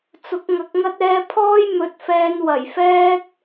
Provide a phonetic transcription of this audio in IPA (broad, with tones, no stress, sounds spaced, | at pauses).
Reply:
t͡s ʊ˨˥ k̚ ŋ ɐ˨˥ k̚ ŋ ɐ˥ t̚ ɛː˧ pʰ ɔː˥ j m ɵ˨˥ t̚ f ɛː˧ n w ɐ˨˩ j f ɛː˥ k̚